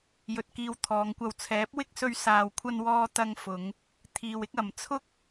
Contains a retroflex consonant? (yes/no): no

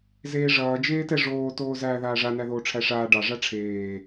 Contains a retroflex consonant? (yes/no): yes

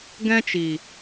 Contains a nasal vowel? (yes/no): yes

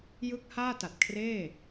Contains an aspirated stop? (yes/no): yes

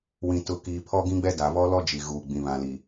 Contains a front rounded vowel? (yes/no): no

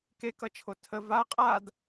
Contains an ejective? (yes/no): yes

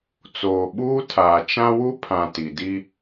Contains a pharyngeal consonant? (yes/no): no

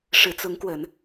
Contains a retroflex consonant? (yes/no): yes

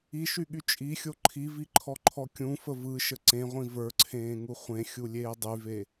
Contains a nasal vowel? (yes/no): yes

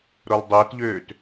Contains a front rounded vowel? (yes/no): yes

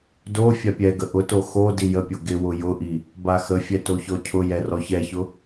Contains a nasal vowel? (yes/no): no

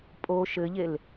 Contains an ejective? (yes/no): yes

